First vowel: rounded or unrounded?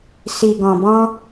unrounded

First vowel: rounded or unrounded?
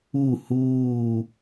rounded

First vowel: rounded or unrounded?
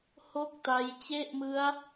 rounded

